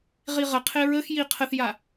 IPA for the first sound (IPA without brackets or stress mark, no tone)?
ʁ